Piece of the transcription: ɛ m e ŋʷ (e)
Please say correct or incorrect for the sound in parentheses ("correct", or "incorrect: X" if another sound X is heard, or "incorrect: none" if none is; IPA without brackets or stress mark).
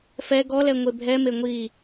incorrect: i